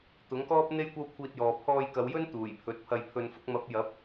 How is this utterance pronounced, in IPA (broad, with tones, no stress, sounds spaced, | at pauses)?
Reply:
t̪ ʊ˨˥ ŋ k ɔː˥ p̚ n̪ e˥ j kʷ ɐ˥ w kʷʰ iː˧ t̚ j ɔː˨ pʰ ɔː˧ j k ɐ˨˧ w j ɵ˥ n t̪ uː˨˩ j pʰ ɵ˨˥ t̚ pʰ ɐ˧ j pʰ ɵ˨ n f ʊ˧ k̚ m ɐ˨˥ p̚ j ɐ˨˥ p̚